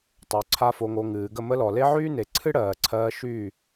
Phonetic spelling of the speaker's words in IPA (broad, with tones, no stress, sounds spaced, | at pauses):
tˤ o˨ ǀʰ a˧ f o˨ ŋ o˨ ŋ ɨː˨ ɡ ə˦˨ m ə˦ l ɔ˨ l e˦ ʕ yː˦ n e˨ ǀʰ ɨ˦ ɽ ɜː˨ ǀʰ ɜː˧ ʃ yː˦˨